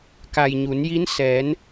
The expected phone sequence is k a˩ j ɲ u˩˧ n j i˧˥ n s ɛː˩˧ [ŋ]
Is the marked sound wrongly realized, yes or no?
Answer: yes